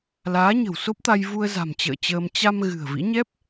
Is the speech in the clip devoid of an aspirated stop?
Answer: yes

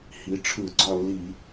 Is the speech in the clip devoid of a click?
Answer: no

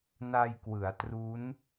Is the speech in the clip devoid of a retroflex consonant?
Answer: yes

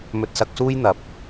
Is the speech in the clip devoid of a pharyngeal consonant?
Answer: yes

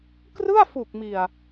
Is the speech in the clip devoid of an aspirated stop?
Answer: yes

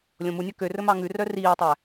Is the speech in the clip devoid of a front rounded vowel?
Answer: no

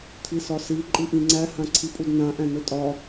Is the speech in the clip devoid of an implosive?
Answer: yes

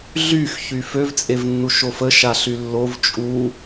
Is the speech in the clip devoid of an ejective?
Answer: no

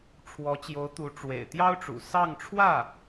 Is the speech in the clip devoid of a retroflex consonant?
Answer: no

